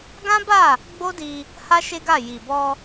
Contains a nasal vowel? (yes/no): yes